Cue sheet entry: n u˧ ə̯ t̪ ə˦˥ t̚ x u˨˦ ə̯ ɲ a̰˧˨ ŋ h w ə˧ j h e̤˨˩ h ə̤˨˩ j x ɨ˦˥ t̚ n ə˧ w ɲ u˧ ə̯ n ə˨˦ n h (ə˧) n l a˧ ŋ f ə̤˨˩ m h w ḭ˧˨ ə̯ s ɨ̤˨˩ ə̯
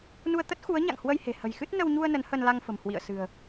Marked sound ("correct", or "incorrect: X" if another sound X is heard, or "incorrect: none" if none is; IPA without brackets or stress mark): correct